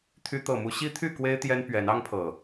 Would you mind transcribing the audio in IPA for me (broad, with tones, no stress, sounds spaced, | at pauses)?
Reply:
t̪ʰ y˨˦ t̪ ɤ˨˩ m u˨˦ ɕ i˦ t̪ʰ y˥˨ k w e˦ ɪ̯ t̪ j ɛ˦ n p ɥ ɛ˨˦ n ɑ˦ ŋ pʰ ɤ˨˩